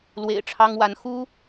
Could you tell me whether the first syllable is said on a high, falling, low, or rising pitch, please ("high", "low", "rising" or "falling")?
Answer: low